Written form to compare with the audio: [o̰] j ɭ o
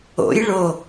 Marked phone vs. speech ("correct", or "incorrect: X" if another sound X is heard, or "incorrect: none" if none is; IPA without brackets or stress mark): correct